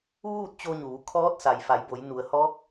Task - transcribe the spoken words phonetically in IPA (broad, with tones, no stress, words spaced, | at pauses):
ʋuː˥˨t̚t͡ɕo˧ɲuː˩˧ kʰɔː˧˥t̚sa˩j fa˩˧jbo˩˧j nu˩ə̯hɔː˧˥k̚